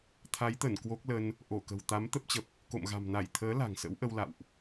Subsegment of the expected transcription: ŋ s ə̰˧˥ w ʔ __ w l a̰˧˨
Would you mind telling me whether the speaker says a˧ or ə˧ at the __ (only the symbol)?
ə˧